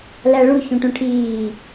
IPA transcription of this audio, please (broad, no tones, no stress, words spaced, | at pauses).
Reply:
læɭu çũʈũʈʰiː